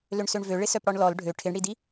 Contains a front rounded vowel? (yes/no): yes